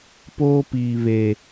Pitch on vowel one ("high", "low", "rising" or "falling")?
high